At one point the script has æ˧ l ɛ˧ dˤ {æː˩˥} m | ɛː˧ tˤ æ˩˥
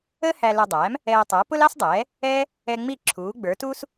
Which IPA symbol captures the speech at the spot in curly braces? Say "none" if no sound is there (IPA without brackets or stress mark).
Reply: æː˩˥